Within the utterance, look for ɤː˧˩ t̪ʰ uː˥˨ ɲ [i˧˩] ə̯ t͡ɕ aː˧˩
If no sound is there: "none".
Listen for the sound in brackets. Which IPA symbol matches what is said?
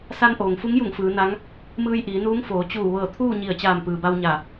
i˧˩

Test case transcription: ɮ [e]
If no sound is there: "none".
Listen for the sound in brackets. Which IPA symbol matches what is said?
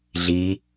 i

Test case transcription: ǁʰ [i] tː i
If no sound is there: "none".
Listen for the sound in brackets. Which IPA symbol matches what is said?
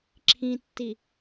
ĩ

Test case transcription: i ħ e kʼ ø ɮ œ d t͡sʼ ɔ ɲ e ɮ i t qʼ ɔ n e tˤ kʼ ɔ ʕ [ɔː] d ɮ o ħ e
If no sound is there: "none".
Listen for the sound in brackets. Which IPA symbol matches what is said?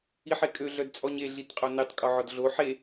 ɔ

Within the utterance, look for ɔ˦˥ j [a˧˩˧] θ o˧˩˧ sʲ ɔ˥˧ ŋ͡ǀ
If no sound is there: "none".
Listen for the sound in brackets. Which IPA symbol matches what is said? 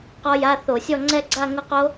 a˧˥˧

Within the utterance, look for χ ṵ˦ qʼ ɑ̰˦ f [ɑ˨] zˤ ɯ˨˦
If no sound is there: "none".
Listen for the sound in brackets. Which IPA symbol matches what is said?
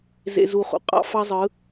ɑ˦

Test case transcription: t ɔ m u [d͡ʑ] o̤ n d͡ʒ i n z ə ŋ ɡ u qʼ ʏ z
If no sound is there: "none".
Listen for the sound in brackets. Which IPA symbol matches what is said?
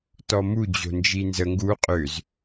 d͡ʑ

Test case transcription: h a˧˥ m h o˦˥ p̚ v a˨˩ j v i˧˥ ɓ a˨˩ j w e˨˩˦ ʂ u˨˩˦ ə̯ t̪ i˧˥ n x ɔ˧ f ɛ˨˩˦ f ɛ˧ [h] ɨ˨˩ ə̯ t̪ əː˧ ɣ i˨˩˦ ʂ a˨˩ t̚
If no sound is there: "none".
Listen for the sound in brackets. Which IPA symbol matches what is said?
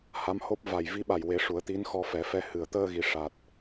h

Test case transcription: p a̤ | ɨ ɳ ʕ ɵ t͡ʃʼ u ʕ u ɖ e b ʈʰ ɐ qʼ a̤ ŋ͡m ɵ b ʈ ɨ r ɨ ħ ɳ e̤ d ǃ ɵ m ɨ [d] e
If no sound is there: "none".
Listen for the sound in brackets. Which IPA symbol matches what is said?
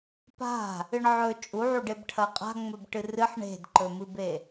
b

